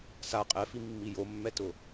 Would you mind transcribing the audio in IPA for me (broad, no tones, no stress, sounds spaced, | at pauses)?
s a qʼ ɛ f i mː i j o mː ɛ t ʊ